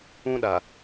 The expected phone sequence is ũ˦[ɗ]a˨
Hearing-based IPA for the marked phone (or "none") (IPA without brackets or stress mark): ɗ